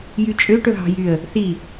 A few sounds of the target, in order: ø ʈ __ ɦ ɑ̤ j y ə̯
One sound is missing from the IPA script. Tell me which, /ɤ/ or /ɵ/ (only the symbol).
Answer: ɵ